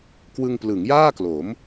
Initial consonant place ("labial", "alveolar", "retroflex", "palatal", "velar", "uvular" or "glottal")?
velar